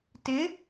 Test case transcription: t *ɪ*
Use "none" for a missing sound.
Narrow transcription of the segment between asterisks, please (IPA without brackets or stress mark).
ɪ